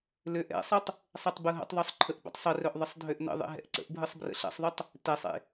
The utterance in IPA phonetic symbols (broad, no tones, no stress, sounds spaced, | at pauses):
l ø ʔ ɛ̰ sˤ ɯ tˤ | sˤ ɛ tˤ b ɯ ɦ ə̰ tˤ ðˤ œ sˤ ǃʰ ə ʔ b ə̰ tˤ sˤ ə r œ ʔ ðˤ ə sˤ dʱ ø ʔ n ə̰ ðˤ ḛ ɦ ɛ̰ ʔ ǀ ə̰ ʔ bʱ ɯ sˤ b r ə̰ ɬ ɛ̰ sˤ ðˤ ø tˤ | t ɛ sˤ ḛ